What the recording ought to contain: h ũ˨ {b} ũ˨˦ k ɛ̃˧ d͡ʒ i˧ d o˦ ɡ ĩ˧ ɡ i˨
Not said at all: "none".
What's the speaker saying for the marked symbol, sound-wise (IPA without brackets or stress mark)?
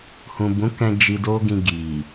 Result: b